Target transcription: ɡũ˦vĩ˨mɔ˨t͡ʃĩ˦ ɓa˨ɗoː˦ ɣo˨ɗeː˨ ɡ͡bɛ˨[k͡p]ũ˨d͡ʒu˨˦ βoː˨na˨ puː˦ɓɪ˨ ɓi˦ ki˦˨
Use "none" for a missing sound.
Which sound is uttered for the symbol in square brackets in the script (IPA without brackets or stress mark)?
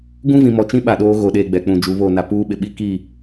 k͡p